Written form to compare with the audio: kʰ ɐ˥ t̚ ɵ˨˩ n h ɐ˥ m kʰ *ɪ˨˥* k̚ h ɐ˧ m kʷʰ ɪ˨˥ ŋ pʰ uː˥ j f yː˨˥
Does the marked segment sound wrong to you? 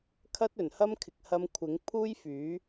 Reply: yes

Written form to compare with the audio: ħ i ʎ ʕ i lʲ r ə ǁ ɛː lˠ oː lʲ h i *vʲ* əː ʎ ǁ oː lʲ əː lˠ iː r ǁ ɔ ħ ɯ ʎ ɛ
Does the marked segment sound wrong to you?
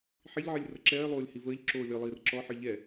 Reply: yes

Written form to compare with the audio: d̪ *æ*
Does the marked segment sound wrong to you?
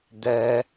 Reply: no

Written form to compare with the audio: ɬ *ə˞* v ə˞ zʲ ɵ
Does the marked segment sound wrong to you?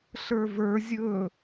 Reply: no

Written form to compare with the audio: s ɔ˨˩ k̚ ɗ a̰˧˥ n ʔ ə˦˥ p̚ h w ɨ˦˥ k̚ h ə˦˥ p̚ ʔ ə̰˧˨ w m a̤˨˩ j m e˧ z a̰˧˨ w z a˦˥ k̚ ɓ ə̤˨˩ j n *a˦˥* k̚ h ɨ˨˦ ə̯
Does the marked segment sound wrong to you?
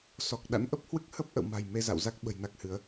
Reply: no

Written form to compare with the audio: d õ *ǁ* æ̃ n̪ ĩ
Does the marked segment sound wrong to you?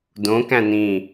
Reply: yes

